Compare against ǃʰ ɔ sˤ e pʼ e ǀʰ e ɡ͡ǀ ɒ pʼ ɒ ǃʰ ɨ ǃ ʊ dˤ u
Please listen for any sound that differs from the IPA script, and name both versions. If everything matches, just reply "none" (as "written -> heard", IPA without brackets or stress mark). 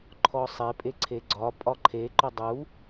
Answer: ɨ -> e